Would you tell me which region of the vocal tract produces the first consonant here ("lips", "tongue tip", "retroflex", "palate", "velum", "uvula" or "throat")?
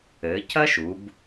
palate